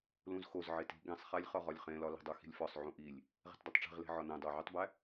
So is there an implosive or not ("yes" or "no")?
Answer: no